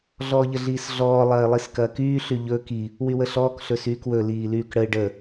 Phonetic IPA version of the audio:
ɮɔːʎəɮiːsɮɔː lˠɐːɪ̯lˠiskɐːkyː ɬyʎɵːk i | wywəɬɔːk ɬɵsyːkwɵ liːlyːkɽəɪ̯ ɖə

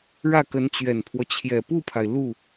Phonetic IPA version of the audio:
ɻä˥˩kə˧˥nt͡ɕɥɛ˨˩npʰwɔ˦ t͡ɕʰjɛ˨˩pu˥˩pʰa˩ɪ̯ lu˥˩

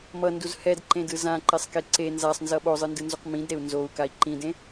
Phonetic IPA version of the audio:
mʌnduz hɛdǃẽdɯ zãǃesˤke ǀe nzasˤnzʌ ɓozˤɯndɯnzuq mĩdɾeu̯ nzou̯kai̯ ǃĩdẽ

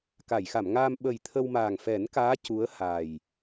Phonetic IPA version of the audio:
ka˨˩˨jxa˨˩˨mŋaː˧m ɓə˨˩j t̪ʰə˧wma˨˩ŋ fɛ˨˩˦nkaː˧˥ cu˧˥ə̯haː˨˩j

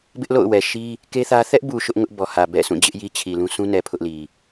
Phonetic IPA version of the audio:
bɪ˦ʔlo̰˦˨ʊ̯wɛ˨ʃi˦ | ke˦ θä˦ θɛ˦ʔbu˨ ʃʊ˦ʔŋʊ˦ʔ bɔ˨hä˨ bɛ̰˦˨sʰũ˦˨d͡ʑɪ˦ʔ ji˦t͡ɕʰi˨lũ˦ sũ˦nɛ˨ pʰʊ˦ʔli˨

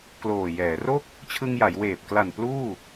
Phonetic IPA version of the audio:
kloː˨˩ jɛː˩˦ro˥˩k̚ | t͡ɕʰɯ˧ŋja˩˦j weː˨˩p̚ kla˨˩n pluː˥˩

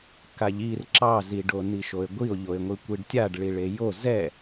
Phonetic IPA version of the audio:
kaʎir ǁɑzi ɖoniʃoe̯ɡʷio̯ ʎoe̯ŋʷikʷiɖtʲaɖ ɭiɭejo zɛ

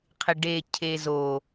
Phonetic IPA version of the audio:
qʰɪɖe cʰezo

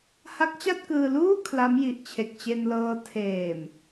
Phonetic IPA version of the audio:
ha˦˥k̚t͡ɕa˥˩t̚kɯː˧luː˥˩ kʰla˦˥mji˨˩ʔt͡ɕʰe˨˩k̚t͡ɕe˧n lɤː˧ tʰeː˨˩m

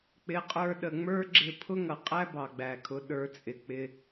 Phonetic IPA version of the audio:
k͡pɪ˩˥qʼə˞˧ɗə˩ ŋ͡mə˞˥ɡ͡ǁɪ˧ pʰʊ˥ŋʌ˩qʼæ˥ bɑ˩ɡ͡bæ˩kʰʊ˩˥ ɗə˞˩˥t͡sʼɪ˩k͡pɪ˧

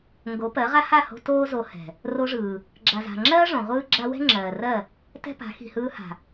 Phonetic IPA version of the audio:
ŋɡo˨˦pɜ˨˦ʁa˦ ha˦˨ho̤˧ toː˦zo˧ hɛ̤˨ | ro˧ʐɯː˨ | ɡ͡ǁa˨za̤˨ŋ͡ǁɜː˦ ʐõ˨ʁʷɯː˦ɡ͡ǁa˦ wɛ̤˦ŋ͡ǁɜː˨rɜ˦˨ | tɛ̤˦pa̤˨˦ xi̤˨hɯː˧ha̤˨

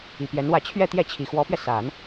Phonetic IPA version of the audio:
i˨˩pjɛ˧˥nwä˥˧ t͡ɕʰɥɛ˥˧t̪jɛ˥˩t͡ɕʰi˨˩ xwɔ˧˥pɥɛ˧sa˨˩˦n

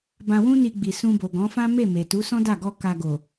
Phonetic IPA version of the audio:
bã˧wũ˦ni˧ ɡ͡bi˨sũ˧bo˨ ɡɔ̃˨˦fã˦ me˦˨me˨tu˨˦ sɔ̃˦da˦˨ɡɔ˧ ka˨ ɡo˨

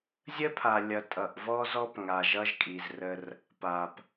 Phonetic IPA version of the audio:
zʲə˦pʰa˨lʲʌ˨ tʼʌ˨ʔ vɔ˦zɔ˦p ŋa˨ʒʌ˦ʒkʼi˨zrə˦r | pa˨p

